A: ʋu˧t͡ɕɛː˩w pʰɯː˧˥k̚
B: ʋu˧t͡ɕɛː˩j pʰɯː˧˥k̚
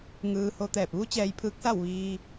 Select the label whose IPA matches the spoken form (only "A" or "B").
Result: B